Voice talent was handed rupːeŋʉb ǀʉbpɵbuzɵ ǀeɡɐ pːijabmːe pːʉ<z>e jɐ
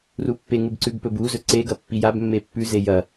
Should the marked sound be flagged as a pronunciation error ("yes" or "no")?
no